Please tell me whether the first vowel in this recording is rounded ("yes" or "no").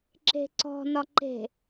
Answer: no